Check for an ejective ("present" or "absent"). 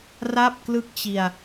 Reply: absent